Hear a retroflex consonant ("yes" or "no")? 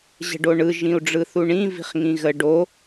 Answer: yes